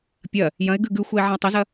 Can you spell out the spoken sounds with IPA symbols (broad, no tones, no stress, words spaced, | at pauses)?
pʲɐ | jɐ̃ɪ̯ ɡʉɡʉxʷɐɪ̯ ʕɐ̃ʊ̯tˤozɐ